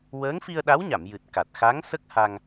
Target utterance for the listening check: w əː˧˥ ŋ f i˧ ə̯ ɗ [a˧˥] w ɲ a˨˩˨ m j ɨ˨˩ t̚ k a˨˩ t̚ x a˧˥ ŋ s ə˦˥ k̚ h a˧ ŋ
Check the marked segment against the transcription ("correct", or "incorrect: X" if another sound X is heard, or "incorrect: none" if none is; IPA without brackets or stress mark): correct